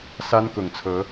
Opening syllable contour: high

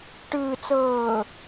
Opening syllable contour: low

